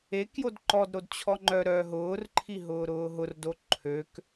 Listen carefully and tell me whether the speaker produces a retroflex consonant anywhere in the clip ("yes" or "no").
no